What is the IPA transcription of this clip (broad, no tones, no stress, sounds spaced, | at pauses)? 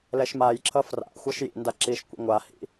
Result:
l ɛ ʃ m a j ǁ ʌ f r a̰ xʷ ʌ ʃ j ḭ n d a ǁ i ʃ kʷ ḛ ŋʷ a h ḭ